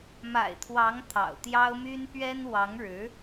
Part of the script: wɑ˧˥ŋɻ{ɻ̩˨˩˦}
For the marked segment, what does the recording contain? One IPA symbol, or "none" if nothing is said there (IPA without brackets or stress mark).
ɻ̩˧˥